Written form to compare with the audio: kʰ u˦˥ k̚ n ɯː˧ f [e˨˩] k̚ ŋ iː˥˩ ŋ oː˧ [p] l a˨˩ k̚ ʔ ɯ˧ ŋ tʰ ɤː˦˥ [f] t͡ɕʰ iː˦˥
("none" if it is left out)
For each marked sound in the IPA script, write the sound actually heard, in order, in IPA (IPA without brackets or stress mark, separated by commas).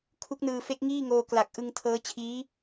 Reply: e˦˥, k, none